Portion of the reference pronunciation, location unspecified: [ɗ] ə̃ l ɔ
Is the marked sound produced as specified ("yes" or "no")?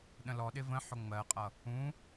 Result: yes